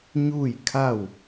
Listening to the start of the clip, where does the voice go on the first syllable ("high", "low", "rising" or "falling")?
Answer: falling